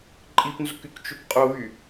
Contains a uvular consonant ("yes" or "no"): yes